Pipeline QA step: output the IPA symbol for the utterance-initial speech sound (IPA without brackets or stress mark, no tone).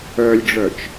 œ